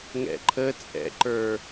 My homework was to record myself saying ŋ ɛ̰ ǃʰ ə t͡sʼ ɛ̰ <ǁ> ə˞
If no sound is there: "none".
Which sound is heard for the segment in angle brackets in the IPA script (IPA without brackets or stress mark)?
ǃ